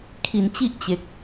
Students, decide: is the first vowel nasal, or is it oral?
oral